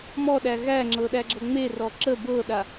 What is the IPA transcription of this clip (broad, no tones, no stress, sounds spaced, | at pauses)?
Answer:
m ɔ ɗ æ ɣ æ ŋ͡ǁ ɤ ɗ æ ɡ͡ǁ ɤ ŋ͡m e r ɔ ǁ ə b ɤ ɗ a